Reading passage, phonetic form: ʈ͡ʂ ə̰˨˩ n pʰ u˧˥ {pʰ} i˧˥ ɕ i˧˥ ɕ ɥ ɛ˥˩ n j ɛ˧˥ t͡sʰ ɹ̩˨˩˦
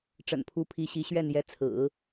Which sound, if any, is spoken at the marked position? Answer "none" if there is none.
pʰ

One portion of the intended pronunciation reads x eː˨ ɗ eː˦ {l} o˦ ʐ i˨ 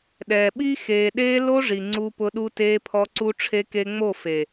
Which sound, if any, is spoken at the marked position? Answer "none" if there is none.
l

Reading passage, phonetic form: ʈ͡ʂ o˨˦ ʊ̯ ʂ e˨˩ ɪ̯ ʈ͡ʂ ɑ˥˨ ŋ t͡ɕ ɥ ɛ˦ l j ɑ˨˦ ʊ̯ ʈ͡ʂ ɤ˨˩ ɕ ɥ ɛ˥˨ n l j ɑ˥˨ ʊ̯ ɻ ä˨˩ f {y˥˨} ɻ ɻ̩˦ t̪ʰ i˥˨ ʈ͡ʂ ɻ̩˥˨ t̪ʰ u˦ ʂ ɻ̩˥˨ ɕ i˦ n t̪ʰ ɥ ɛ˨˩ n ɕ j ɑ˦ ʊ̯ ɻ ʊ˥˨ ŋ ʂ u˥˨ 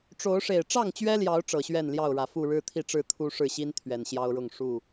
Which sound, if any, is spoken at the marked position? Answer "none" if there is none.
u˥˨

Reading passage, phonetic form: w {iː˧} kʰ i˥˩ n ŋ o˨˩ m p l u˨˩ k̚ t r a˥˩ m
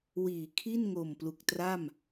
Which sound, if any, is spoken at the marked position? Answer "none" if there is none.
iː˩˦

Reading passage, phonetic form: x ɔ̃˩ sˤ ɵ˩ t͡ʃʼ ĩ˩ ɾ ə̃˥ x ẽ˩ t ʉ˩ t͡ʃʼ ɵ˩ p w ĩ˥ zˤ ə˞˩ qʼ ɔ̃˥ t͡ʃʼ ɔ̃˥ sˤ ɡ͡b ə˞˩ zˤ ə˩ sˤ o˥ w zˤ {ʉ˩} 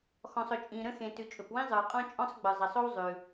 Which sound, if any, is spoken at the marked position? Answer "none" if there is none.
ʉ˩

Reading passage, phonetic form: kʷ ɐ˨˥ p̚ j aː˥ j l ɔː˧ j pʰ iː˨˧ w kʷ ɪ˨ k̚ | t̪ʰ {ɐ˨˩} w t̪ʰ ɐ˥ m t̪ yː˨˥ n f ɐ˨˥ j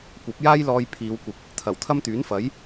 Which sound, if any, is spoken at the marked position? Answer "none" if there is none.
ɐ˨˩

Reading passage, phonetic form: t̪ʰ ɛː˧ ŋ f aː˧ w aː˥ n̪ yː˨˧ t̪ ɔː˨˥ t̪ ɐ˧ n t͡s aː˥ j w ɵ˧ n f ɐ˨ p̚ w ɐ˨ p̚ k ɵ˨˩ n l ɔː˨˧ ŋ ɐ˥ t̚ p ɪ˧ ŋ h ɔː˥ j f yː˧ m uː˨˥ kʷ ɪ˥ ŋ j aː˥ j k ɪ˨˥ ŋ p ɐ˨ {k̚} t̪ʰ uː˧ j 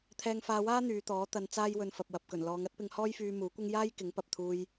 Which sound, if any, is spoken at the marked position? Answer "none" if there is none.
p̚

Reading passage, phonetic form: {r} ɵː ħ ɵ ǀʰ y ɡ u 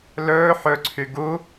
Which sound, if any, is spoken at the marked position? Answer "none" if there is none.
l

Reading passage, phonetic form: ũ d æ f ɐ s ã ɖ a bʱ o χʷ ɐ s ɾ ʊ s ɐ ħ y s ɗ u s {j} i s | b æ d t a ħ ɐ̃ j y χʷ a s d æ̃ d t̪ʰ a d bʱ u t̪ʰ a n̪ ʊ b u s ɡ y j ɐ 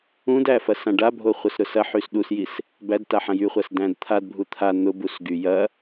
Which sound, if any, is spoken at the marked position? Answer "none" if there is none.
j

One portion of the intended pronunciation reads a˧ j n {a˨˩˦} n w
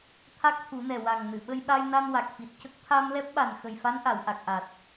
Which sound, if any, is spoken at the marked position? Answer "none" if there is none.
a˧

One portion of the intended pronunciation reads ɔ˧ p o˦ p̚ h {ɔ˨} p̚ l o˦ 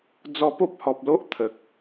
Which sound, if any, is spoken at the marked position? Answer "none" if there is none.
ɔ˨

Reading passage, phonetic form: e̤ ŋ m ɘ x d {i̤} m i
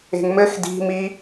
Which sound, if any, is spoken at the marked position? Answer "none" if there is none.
i̤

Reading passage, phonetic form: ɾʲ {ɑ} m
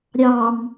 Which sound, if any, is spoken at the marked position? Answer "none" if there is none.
ɑ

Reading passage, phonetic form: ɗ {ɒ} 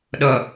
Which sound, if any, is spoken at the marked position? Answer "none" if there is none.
ʌ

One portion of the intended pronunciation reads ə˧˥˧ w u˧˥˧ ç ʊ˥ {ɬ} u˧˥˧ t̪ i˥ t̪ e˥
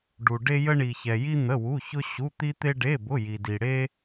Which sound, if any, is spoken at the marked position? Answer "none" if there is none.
ɕ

